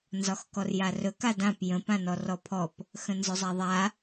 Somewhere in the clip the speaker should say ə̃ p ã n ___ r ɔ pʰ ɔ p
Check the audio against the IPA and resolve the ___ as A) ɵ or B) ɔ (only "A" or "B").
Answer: B